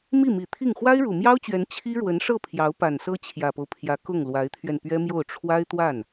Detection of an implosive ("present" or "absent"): absent